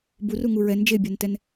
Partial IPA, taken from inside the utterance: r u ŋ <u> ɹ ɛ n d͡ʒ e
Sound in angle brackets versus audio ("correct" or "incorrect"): correct